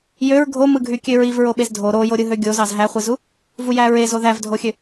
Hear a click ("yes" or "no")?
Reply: no